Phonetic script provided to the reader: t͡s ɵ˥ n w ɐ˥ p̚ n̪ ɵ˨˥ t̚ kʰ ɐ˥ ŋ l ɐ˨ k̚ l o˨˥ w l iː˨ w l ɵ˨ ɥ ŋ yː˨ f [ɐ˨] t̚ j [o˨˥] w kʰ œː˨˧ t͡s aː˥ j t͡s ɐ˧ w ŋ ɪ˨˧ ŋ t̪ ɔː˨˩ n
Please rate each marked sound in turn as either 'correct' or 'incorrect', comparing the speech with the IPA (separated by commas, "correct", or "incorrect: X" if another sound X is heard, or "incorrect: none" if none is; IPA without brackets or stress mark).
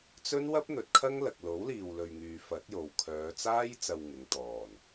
incorrect: ɐ˨˥, incorrect: o˨